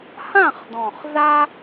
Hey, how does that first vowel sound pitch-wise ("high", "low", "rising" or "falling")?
falling